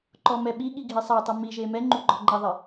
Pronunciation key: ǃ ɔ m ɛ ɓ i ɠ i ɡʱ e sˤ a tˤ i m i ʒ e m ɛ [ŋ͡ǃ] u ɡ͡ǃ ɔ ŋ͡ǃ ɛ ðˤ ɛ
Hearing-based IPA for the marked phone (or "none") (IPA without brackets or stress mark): ŋ͡ǃ